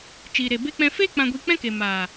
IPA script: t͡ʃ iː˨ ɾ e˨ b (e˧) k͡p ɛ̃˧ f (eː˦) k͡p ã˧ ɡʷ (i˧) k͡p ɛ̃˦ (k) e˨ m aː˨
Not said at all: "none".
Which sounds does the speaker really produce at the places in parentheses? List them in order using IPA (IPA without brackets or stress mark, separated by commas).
e˧, eː˦, i˧, k